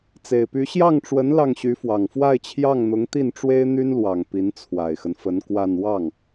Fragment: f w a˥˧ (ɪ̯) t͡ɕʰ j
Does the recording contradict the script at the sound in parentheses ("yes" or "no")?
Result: no